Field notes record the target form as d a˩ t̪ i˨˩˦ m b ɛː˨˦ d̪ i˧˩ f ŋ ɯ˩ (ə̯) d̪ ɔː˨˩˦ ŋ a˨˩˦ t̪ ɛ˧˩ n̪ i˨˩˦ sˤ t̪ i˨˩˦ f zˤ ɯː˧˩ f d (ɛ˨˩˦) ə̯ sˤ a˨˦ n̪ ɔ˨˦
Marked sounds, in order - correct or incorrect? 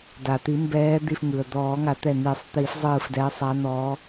correct, incorrect: ɛ˨˦

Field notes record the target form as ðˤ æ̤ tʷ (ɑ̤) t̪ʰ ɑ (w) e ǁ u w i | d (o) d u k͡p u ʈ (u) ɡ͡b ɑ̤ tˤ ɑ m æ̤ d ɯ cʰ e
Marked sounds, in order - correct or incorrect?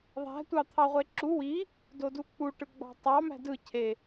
incorrect: ɑ, incorrect: ʁʷ, correct, incorrect: ɯ

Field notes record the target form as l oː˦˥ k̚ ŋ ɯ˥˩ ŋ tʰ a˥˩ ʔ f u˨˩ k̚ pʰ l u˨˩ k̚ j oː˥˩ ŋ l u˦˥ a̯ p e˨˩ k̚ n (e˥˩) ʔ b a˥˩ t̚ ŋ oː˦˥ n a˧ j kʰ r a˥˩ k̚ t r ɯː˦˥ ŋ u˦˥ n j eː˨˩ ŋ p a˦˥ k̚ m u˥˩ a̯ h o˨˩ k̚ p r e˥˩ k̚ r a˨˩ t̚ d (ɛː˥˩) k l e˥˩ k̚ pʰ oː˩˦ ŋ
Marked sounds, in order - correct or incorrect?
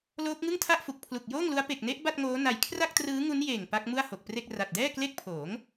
incorrect: e˦˥, correct

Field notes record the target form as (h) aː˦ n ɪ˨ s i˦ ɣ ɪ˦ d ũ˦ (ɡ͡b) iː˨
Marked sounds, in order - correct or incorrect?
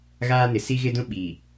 incorrect: ɣ, incorrect: ɓ

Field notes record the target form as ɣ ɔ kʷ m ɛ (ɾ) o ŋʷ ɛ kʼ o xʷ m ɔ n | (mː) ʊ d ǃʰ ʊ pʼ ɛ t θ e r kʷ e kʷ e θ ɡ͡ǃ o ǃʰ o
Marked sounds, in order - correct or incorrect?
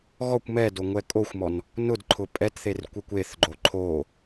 incorrect: d, incorrect: n

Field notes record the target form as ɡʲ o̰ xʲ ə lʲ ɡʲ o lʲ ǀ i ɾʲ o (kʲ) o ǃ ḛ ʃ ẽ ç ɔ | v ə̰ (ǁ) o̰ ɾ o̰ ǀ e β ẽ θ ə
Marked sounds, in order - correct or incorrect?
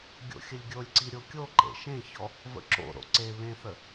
correct, correct

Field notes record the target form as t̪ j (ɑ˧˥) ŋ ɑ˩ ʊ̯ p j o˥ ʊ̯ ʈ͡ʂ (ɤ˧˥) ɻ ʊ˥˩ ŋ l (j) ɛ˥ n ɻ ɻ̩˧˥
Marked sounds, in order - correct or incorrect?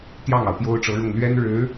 incorrect: ɑ˥˩, correct, incorrect: ɥ

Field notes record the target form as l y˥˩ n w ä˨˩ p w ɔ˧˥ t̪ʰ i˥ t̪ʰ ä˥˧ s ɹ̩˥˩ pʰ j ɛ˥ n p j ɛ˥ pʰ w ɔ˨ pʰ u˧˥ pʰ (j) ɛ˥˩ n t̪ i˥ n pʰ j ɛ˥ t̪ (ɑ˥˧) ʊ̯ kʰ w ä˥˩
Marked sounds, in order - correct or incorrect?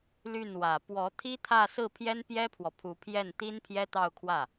correct, correct

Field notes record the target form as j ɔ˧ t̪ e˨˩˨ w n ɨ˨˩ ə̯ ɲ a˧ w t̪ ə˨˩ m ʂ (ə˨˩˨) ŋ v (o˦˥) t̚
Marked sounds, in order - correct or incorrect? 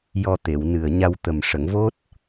correct, correct

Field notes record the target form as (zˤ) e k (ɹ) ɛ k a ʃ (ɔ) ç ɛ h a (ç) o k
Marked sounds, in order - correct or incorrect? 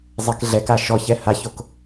correct, incorrect: ɮ, correct, correct

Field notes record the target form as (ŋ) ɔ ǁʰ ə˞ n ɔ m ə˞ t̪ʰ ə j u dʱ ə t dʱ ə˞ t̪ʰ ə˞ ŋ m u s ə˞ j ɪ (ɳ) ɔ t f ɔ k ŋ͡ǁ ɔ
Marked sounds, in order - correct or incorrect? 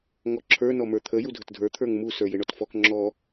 correct, correct

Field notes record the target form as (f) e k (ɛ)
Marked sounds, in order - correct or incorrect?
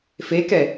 correct, correct

